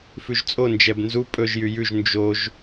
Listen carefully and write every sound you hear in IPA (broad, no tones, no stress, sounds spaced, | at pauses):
f ʉ ʒ t͡sʼ o n d͡ʒ ɛ b n z u pʼ ɵ ʒ j y j ʉ ʒ n d͡ʒ o ʒ